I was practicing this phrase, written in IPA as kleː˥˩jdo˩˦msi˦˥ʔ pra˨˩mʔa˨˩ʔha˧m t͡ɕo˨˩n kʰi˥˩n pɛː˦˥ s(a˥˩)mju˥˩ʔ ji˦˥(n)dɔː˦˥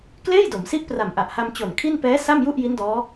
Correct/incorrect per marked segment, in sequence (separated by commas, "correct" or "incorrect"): correct, correct